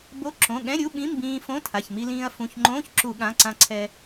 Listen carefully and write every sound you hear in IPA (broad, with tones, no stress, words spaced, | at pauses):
bo˧˥˧ ǁõ˩˧˩ɠɛ̃˧˥˧ ɾʲu˧˥˧ɓĩ˧˥˧mbĩː˧ fõ˧˥˧tʰa˩˧˩çmi˧lĩː˧ɐ̯ fũ˩˧˩çŋ͡ǃõː˧˥˧ç ǁu˧˩˧ɠã˩˧˩ǀã˧ǀʰɛ˧